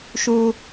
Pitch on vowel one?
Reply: high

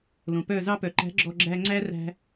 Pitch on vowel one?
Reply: low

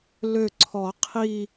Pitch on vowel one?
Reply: falling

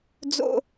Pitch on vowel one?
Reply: low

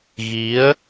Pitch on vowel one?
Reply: rising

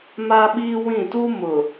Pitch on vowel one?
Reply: high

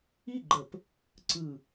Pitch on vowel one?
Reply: falling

